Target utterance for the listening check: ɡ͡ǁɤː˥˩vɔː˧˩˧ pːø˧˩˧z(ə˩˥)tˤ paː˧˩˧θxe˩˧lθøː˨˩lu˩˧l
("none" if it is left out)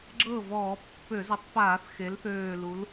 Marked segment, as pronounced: ə˩˥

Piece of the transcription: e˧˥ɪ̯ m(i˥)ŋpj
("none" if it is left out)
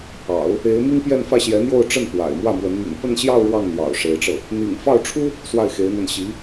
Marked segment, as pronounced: i˥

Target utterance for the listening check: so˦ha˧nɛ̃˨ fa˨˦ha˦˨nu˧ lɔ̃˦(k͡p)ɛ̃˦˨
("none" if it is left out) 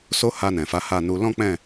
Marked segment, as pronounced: k͡p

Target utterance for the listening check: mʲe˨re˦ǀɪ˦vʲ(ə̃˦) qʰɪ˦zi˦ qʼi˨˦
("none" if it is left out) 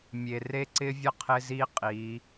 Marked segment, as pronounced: ə˦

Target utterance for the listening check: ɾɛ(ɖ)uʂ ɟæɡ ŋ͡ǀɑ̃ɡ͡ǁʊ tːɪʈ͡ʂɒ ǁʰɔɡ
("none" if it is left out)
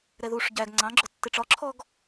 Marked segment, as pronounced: ð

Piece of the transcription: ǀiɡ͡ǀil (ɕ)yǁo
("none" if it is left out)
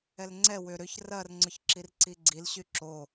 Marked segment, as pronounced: ɕ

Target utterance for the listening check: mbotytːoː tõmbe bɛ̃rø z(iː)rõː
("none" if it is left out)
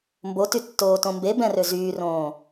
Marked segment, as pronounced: yː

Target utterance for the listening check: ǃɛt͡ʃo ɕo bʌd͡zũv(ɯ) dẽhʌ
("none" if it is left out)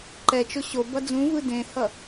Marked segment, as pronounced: ɯ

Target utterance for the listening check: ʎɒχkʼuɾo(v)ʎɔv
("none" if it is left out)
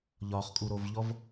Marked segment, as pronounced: v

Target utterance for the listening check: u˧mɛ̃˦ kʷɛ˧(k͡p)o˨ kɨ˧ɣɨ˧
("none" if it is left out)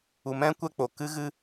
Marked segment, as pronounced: k͡p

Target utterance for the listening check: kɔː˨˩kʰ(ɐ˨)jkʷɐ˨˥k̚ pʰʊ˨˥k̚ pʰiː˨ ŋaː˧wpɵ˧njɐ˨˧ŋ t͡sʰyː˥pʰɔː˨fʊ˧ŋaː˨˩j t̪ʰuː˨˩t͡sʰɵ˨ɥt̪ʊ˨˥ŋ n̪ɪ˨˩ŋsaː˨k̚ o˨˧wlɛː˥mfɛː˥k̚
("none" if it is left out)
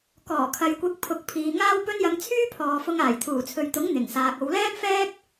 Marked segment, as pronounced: ɐ˨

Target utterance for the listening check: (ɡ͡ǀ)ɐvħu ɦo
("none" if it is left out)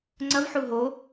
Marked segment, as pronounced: ŋ͡ǀ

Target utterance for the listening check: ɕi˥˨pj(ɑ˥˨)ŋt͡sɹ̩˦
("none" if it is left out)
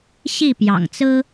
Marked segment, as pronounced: ɑ̰˨˩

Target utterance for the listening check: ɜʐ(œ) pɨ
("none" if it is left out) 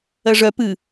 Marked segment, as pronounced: œ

